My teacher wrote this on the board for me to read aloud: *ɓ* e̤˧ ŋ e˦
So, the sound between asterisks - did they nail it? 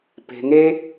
no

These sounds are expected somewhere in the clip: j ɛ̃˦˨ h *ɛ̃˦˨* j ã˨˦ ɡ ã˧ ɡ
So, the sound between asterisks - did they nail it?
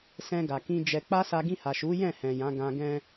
no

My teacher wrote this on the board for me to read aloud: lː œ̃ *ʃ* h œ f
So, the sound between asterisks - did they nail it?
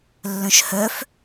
yes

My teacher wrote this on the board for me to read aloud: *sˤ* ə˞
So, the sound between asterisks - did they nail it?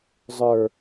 no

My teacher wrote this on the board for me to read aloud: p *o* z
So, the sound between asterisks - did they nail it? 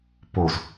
yes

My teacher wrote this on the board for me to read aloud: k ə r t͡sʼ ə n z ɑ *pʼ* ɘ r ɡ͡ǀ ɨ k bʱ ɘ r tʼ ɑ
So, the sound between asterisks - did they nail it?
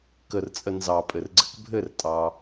yes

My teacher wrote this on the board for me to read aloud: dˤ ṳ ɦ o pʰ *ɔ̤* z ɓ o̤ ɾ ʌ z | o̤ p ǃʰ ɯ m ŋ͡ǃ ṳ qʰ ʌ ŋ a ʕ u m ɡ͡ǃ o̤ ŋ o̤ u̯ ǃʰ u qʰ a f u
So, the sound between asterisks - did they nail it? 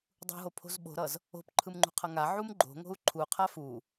no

